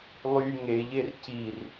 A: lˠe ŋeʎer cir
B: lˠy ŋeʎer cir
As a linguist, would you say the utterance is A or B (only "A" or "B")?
B